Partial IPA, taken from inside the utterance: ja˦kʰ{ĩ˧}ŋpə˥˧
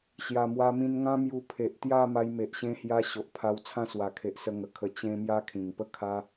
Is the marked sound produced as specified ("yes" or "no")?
no